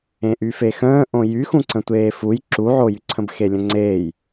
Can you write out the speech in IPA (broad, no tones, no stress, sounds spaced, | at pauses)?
ẽ ʔ y f e x ə̃ː ʔ õ j y x ũ ǀ ə̃ tʷ eː f u j ǁ u ʕ o j y ǀʰ ə̃ b x e lʲ ə̃ ŋ͡ǀ eː j